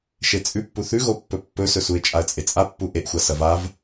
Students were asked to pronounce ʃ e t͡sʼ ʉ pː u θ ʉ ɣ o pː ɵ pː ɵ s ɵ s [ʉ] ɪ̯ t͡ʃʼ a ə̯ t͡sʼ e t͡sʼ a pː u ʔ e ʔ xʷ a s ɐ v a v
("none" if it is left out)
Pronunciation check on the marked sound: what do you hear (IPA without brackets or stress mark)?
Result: u